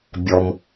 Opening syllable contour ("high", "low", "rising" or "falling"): low